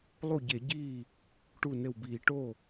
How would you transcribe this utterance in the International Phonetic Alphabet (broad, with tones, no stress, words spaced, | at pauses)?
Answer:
lˠu˥˩ɟe˧˩˧ɟiː˥˩ | ʈu˥˩nɘ˥˩wbiː˧˩˧ ʈo˥˩